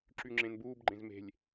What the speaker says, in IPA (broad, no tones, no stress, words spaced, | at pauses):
ǁyŋ͡ǁẽnbuːb ɡ͡ǃẽzme̤lʲ